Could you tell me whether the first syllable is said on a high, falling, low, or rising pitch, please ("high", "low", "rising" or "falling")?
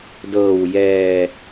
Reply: low